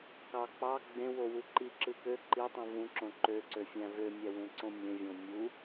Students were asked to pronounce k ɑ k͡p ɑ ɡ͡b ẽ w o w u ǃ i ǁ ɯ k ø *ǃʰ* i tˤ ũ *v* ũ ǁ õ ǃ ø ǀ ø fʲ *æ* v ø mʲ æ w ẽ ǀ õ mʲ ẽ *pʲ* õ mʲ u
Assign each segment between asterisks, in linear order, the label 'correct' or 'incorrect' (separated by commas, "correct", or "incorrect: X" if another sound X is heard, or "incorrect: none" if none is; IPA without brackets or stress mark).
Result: incorrect: ǃ, correct, incorrect: æ̃, incorrect: vʲ